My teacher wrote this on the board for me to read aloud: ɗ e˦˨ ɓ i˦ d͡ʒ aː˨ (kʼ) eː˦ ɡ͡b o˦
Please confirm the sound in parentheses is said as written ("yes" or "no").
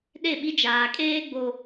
yes